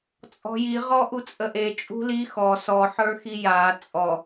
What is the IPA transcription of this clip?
t͡sʼ ɔ̤ j i ʁ ɔ ʔ u t͡sʼ ə ʔ e t͡ʃʼ ṳ l i x ɔ s ɔ ħ ə˞ x i j a t͡sʼ ɔ

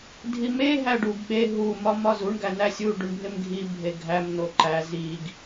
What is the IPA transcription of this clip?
dʱ i m e ɦ æ ɖ u ɡ ɓ e ɦ u m ɒ m ɒ z u ɳ ɡ æ n æ sʲ u ɖ u ɳ bʱ e m ɡʱ i bʱ e ɡʱ æ m n o ǃ æ z i ɡ

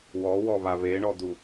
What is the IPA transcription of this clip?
w ɔ w ɔ β a β e ɳ ɔ d̪ u

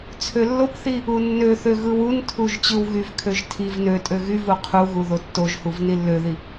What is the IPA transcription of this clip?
t͡sʰ ø lː o p θ i | u nː ø θ ø ɣ ɯ w u n tʰ u ʒ t͡ɕ ɯ w ɣ y v kʰ ø ʒ tʰ i v n ø tʼ ø ɣ y v u qʰ u ɣ u ð o tː o ʒ h u v n i lː ø ð i

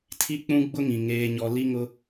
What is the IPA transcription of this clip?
tʰ i˦ k͡p ũ˦ ɡ͡b ʊ˦ ŋ ĩ˨ ŋ eː˦ ɲ ɔ˦ l i˦ ŋ ʊ˦

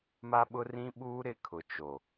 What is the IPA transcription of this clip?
m a˦ ɓ ʊ˦ r ĩ˦ ɓ uː˦ ɾ ɪ˦ kʰ ʊ˨ t͡ʃ o˨

